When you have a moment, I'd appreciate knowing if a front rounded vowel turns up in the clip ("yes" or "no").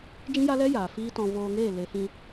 no